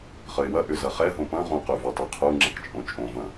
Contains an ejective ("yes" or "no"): yes